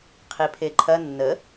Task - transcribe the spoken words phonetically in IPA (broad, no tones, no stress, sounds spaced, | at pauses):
qʰ i pʰ e ǃʰ ɐ nː ə